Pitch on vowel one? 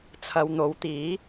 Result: low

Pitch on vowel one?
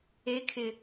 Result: rising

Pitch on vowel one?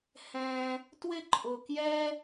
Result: high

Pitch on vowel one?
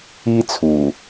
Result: high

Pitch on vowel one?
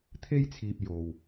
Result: high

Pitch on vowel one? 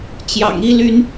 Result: low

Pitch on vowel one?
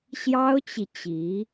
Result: high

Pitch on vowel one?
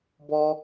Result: high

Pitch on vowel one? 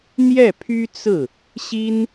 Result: falling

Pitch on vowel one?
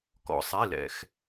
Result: low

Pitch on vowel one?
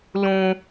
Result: high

